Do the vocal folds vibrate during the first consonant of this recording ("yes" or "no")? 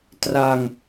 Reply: no